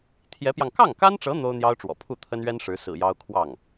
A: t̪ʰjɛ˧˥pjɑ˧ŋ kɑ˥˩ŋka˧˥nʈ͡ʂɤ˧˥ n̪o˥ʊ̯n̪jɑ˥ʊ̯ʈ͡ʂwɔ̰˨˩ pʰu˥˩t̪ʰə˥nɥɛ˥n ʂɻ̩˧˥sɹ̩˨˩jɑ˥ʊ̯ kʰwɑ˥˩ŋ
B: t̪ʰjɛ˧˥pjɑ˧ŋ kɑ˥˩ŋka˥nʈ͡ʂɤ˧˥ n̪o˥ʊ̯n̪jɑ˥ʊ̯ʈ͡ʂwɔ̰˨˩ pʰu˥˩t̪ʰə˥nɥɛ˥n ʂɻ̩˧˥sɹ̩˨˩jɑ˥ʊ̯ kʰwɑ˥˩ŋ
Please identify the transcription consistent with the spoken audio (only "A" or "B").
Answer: B